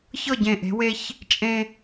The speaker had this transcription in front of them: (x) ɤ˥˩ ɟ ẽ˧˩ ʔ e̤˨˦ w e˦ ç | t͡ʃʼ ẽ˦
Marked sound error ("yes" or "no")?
yes